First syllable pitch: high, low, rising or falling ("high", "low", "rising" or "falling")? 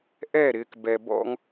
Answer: falling